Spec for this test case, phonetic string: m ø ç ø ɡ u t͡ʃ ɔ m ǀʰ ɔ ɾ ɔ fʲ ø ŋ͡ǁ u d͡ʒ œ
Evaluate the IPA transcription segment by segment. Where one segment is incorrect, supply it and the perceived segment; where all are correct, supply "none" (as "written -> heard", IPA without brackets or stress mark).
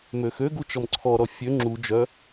ç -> x